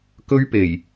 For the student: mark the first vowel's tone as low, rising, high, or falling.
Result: high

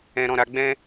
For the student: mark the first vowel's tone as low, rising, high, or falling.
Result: low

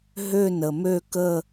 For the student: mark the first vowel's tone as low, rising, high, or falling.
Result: falling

